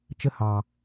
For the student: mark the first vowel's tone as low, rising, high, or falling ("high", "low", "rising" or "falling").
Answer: high